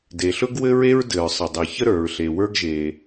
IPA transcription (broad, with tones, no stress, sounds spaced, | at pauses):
d e˩ ɬ ɵ˥ ɡ w ɘ˥ ɹ e˥ ɹ d ɘ˩ ɹ sˤ ə˩ dˤ ɘ˩ ç ə˥ ɾ ə˞˩ ɹ ɬ e˩ w ə˞˥ ɡ ʒ e˩